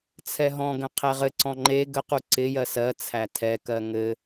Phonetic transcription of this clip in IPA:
t͡sʰ ɛ ɦ ɔ̃ ɡ ə̃ qʰ ɛ ʁ ɘ ǀ ɔ̃ ŋ͡ǃ e ɡ ə q u ǀ ɪ j ɜ s ɜ t͡sʰ æ tʰ ɛ k ɜ ŋ ɘ

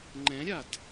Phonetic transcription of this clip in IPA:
ŋ͡ǃ ɛ̃ ɾʲ a d

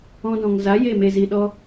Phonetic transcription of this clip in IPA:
ɔ̃˧ d ɔ̃˨ ŋ z a˨˦ j e˦˨ m e˨ z i˨ ɗ ɔ˧

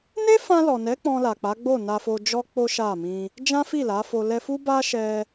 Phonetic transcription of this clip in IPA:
n e˦ f ã˧ l ɔ˨ n ɛ˨˦ k͡p ɔ̃˧ l a˨ k͡p a˨˦ ɡ͡b o˦˨ n a˧ f o˧ d͡ʒ ɔ˦ k͡p o˦ ʃ a˦˨ m ĩ˧ | d͡ʒ ã˦ f i˦˨ l a˨˦ f o˧ l ɛ˧ f u˦ b a˦ ʃ ɛ˧

